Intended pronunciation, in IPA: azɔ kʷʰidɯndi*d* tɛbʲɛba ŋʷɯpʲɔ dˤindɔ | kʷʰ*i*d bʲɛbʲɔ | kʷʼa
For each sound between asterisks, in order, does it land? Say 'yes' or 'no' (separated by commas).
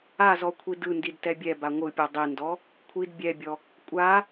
yes, yes